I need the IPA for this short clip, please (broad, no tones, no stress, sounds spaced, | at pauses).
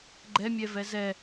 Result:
ɡ͡ǃ ɛ mʲ ɛ v ɛ z ɛ